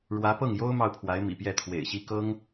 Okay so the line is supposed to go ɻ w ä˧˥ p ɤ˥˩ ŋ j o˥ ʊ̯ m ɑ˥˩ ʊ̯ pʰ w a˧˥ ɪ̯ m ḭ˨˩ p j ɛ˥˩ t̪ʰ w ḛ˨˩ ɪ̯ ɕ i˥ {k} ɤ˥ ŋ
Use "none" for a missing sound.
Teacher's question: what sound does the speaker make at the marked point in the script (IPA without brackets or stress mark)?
k